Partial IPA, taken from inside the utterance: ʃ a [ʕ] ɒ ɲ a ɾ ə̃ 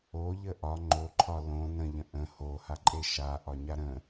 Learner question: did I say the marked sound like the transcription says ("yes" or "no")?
no